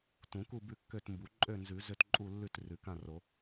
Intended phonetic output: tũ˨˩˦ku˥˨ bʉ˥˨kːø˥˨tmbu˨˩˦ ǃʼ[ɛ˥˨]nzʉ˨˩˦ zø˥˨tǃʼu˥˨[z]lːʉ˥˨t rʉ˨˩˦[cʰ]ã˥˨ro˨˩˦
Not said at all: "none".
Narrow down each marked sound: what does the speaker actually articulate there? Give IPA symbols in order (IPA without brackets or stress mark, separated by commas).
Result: ø˥˨, none, k